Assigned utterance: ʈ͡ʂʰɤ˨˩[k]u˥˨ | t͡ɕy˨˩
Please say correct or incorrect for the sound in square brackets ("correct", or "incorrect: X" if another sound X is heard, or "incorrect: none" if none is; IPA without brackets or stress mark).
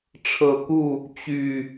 correct